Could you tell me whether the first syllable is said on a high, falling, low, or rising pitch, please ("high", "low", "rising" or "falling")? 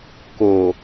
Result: low